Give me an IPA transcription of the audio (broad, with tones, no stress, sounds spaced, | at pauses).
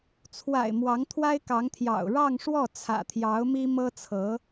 t͡sʰ w a̰˨˩ ɪ̯ m w ɑ˧˥ ŋ t̪ʰ w a˥ ɪ̯ k ɑ˧˥ ŋ t̪ʰ j ɑ̰˨˩ ʊ̯ ɻ ɑ˥˧ ŋ ʂ w ɔ˥˩ t͡sʰ ä̰˨˩ t̪ʰ j ɑ˧˥ ʊ̯ m i˥ m ɤ˥ t͡sʰ ɤ˧˥